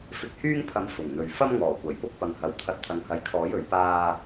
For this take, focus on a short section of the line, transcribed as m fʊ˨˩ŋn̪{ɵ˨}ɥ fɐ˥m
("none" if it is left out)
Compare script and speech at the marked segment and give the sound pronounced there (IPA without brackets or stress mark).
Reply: ɵ˨